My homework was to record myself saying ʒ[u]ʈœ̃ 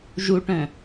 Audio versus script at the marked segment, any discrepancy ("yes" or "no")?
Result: no